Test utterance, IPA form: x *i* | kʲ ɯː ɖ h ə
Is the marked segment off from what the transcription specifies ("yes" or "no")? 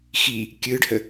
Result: no